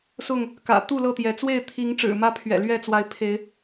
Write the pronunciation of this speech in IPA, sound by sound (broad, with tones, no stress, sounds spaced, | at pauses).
s ʊ˥˨ ŋ | k ä̰˨˩ t̪ u˥˨ l ɤ˥˨ t̪ j ɛ˨˦ t͡s w e˥˨ ɪ̯ t̪ʰ i˨˦ ŋ ʈ͡ʂ ɻ̩˨˩ m ä˦ pʰ ɥ ɛ̰˨˩ l ɥ ɛ˥˨ t͡s w a˨˦ ɪ̯ pʰ e˨˦ ɪ̯